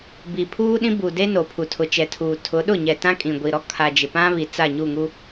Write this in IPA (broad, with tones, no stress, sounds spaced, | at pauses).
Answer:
b i˨ pʰ uː˦ ɗ ĩ˦ b u˨ d e˦ n o˨ pʰ u˨ tʰ ʊ˨ t͡ʃ ɛ˨ tʰ uː˨ tʰ ʊ˨˦ ɗ ʊ˦˨ ɲ ɛ˨ t ã˦ kʼ ĩ˨ ɡʷ i˨ ɾ ɔ˦ kʰ a˨ d͡ʒ ɪ˨ p ã˦ β i˨ t͡s a˦˨ ɲ u˦˨ ŋ u˦